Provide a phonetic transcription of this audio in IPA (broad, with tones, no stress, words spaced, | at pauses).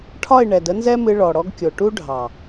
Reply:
ʈʰɒ˦˨ɪ̯ ɳɛ˨də˦nzɛ˦mɨ˧ ɭɔ˨ɽɔ˧ɡkʲo˨ ʈu˦ɖʱɑ˨